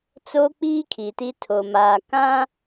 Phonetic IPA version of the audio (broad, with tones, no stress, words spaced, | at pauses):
t͡so˦k͡piː˦ kʰi˨ti˦ tʰo˨maː˨ kã˦